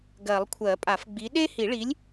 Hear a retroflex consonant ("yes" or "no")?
yes